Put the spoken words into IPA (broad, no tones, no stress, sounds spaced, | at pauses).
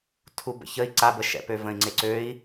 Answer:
tʰ u b ə̰ ç ə i̯ ǀ a b ə ʃ ɛ̰ p ø v ə̃ i̯ ŋ͡ǀ e ǀ ø i̯